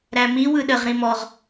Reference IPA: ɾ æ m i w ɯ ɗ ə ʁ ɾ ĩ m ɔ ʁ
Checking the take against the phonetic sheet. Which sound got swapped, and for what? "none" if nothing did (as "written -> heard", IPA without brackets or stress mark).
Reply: none